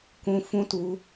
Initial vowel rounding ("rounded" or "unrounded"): rounded